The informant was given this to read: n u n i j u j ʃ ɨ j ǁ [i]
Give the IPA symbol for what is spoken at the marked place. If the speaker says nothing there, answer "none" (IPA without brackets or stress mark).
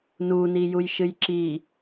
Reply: i